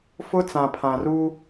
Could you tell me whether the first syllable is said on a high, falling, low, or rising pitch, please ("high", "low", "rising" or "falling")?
high